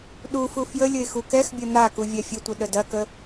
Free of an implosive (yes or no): no